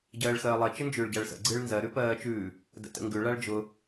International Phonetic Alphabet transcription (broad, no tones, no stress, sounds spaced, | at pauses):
ɟ ɜː ɭ x ɜː lˠ ɜ t͡ʃ ə n d͡ʒ ʉː ɭ ɟ a ɭ s ə̰ ɡ͡ǀ ɨː ɭ n z ɜ ɾ ʉ p ɜː t͡ʃ ʉː | d ə̰ t ə̰ ŋ ɡ ʉ ɭ a ɭ d͡ʒ ʊ